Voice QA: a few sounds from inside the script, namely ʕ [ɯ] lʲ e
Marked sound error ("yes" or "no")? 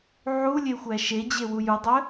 yes